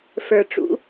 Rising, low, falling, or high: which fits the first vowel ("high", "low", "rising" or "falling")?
low